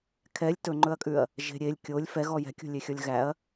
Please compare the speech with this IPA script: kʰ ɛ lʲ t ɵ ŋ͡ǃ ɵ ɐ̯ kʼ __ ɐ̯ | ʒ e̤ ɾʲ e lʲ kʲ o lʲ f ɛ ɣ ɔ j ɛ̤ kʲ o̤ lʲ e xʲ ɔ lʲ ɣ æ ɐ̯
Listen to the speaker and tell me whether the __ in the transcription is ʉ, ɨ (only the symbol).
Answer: ʉ